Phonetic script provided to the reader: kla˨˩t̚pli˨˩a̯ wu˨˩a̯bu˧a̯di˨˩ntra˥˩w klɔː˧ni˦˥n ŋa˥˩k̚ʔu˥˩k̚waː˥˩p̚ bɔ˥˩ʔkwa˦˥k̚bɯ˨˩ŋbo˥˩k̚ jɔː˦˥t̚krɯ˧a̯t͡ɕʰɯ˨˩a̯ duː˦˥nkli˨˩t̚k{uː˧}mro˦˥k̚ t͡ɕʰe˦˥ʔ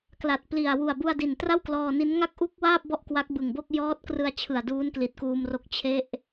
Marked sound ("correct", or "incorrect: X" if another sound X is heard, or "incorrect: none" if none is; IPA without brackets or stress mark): correct